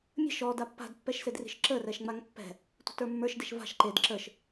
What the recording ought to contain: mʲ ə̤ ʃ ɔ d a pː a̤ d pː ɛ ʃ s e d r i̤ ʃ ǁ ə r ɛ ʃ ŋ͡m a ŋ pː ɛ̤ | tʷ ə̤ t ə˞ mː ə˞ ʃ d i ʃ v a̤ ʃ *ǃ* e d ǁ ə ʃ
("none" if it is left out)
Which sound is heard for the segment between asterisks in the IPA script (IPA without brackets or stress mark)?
ǃ